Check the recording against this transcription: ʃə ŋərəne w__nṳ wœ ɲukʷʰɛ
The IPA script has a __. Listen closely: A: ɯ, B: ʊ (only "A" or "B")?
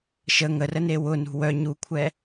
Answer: B